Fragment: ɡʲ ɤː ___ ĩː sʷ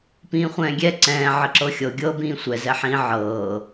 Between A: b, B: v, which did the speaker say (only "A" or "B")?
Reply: A